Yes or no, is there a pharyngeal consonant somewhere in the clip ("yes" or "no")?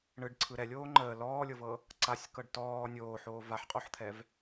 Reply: yes